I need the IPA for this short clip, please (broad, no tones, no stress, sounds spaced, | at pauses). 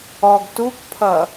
ɔ ɡ t u k pʰ ʌ